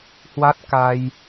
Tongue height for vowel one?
low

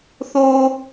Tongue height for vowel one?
mid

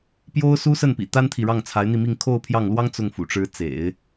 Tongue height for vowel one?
mid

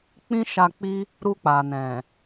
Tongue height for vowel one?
high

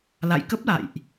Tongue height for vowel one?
low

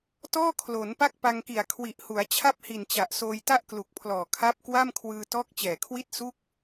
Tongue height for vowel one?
mid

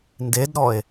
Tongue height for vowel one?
mid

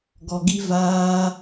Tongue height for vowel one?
mid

